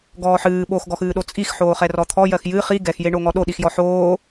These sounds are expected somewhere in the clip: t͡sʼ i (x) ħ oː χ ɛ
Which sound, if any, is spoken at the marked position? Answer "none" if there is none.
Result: x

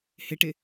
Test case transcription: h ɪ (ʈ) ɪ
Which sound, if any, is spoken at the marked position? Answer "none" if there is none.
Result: ʈ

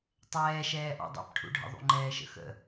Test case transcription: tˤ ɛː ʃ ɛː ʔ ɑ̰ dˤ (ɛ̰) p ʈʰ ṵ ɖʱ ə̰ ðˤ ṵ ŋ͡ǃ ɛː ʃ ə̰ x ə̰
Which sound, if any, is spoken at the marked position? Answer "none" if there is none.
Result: ɛ̰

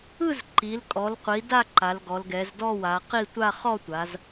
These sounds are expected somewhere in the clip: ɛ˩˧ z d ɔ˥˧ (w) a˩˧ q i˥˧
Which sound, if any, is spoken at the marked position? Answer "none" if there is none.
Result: w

